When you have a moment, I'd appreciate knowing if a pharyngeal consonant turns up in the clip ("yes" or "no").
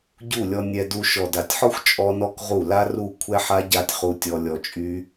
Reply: yes